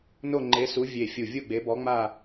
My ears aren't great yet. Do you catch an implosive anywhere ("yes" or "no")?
no